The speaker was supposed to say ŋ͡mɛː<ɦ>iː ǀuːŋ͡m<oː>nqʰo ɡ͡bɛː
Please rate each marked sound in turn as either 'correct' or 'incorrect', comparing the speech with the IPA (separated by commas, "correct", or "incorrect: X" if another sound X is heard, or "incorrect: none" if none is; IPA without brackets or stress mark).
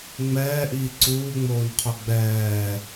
incorrect: ʔ, correct